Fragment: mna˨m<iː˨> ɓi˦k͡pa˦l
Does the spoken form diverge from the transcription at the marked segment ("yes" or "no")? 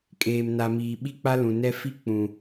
no